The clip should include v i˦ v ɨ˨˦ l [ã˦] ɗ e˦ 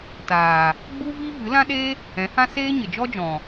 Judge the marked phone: correct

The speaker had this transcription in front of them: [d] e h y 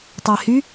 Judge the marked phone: incorrect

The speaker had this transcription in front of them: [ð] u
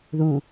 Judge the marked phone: correct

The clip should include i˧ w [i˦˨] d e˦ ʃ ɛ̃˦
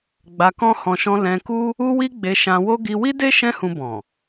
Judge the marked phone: incorrect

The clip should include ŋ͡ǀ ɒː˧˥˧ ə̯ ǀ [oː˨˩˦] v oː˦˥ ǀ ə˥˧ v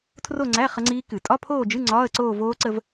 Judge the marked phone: incorrect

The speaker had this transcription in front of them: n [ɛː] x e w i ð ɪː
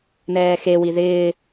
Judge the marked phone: correct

